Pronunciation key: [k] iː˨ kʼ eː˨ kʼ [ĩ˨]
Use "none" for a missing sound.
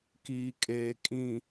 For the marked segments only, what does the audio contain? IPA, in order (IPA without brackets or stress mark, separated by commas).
k, ĩ˨